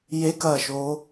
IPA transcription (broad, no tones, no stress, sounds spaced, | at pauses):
j e k ɐː ʃ oː